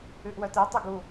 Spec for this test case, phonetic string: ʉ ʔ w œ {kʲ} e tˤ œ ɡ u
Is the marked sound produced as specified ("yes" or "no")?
no